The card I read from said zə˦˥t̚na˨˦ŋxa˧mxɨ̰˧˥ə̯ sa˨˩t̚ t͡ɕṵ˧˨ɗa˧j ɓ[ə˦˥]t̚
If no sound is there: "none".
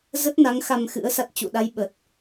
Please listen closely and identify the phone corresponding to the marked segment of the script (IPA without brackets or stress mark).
ə˨˩